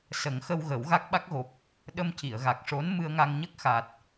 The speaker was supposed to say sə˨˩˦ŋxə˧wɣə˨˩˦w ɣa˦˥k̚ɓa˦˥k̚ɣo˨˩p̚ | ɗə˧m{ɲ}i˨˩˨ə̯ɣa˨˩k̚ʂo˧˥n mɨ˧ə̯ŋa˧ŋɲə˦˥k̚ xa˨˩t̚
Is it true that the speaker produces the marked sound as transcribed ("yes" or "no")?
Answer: no